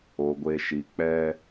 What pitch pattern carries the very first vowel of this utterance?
low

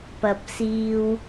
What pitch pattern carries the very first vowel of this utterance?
low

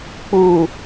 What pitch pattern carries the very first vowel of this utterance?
low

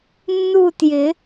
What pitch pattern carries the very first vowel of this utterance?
falling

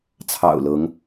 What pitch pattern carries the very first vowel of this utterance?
low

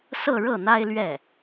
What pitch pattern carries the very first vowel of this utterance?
falling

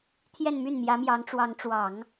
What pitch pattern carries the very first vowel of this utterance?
falling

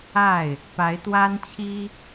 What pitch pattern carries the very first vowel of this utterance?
falling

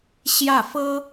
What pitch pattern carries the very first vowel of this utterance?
falling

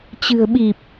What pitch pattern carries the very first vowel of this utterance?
low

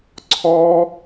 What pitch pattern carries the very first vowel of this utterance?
high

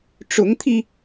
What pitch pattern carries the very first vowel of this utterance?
rising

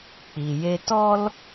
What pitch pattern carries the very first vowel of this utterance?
low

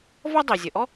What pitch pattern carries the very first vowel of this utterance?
high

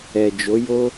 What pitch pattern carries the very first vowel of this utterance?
low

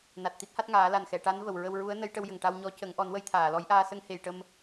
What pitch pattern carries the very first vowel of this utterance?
low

